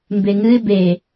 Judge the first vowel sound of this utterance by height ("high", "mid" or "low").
mid